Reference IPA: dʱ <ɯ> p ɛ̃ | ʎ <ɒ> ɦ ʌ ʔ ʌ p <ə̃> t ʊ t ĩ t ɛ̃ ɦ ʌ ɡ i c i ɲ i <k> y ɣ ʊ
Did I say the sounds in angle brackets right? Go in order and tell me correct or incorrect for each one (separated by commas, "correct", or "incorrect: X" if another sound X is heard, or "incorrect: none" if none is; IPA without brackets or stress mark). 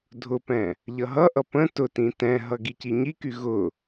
incorrect: ʊ, incorrect: ʌ, correct, correct